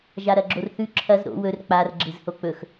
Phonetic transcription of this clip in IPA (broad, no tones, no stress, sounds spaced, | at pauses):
ʒ a ɾ ɐ ɡ͡ǁ o r θ ʉ ǁʰ ɐ z ɾ o̰ w ɵ r k͡p a r ɡ͡ǁ ɨ z h o k͡p ɵ x